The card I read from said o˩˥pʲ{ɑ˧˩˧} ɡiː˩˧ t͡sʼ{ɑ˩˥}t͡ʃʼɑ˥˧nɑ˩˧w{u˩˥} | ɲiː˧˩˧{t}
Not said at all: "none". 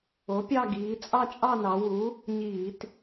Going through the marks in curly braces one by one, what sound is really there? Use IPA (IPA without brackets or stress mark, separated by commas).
ɑ˥˧, ɑ˥˧, u˩˥, t